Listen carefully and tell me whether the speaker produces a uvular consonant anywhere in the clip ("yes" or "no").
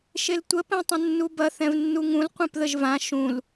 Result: yes